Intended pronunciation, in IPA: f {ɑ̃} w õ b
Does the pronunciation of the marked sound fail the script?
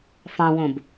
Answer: no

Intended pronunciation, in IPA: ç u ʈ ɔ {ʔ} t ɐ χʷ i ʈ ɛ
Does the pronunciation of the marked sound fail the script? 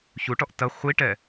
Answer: no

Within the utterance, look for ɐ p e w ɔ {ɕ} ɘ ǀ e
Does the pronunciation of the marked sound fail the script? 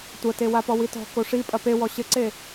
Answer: no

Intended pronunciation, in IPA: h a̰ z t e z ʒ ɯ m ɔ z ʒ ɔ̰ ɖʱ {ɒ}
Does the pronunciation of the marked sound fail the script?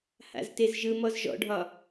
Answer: no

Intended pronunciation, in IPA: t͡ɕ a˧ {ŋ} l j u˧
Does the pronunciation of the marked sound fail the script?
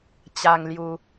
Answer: no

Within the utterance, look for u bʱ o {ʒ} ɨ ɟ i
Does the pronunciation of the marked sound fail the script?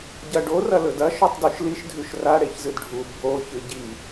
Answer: yes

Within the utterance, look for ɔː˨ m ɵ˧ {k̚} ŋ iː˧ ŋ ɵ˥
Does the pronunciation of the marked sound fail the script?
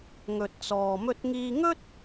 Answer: yes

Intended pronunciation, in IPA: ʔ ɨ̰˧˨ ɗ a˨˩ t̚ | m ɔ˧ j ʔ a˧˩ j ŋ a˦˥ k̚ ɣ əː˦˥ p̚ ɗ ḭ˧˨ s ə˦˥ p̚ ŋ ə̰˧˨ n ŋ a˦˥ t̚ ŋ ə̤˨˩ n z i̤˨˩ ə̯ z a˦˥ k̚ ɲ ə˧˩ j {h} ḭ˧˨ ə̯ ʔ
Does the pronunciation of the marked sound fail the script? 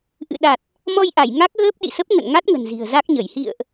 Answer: no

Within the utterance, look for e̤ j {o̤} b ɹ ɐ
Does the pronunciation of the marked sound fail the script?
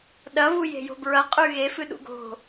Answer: no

